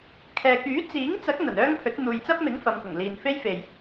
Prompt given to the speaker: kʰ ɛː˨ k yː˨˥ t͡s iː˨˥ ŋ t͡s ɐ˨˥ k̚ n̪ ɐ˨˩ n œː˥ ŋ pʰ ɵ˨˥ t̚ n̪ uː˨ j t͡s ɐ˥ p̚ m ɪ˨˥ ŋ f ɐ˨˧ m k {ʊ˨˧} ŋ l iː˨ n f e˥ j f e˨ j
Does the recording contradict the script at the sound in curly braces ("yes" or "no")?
yes